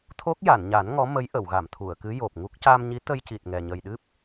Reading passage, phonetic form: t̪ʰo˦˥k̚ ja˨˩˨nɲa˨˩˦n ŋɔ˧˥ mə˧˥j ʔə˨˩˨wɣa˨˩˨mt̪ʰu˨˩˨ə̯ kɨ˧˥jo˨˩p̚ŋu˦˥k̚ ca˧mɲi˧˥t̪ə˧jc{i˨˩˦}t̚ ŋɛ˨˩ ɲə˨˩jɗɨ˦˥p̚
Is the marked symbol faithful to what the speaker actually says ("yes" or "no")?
no